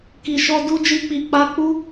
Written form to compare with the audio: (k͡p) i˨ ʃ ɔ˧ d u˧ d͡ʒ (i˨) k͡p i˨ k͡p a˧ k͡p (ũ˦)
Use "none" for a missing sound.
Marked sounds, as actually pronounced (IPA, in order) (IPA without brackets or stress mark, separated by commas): k, i˧, u˦